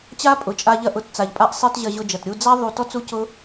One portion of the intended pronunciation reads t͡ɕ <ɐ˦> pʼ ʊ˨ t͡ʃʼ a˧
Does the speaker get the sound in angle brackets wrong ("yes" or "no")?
yes